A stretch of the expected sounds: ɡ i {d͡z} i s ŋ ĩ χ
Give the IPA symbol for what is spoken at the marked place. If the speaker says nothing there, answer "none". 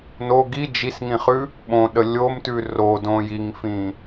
d͡ʒ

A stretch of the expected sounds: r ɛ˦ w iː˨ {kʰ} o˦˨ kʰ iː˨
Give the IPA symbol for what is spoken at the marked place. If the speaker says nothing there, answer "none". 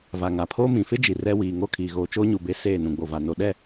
ŋ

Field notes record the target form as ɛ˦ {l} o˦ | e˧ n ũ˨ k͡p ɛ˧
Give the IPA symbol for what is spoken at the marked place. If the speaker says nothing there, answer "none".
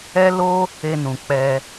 l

